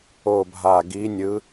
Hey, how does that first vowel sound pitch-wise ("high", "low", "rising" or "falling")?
low